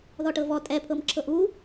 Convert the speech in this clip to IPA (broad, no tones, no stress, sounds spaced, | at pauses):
ð ɔ ʈ ɤ v ɔ tʼ ɛ pʰ ɤ m ǁʰ ɤ ʔ u